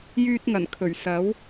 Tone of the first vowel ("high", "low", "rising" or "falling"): high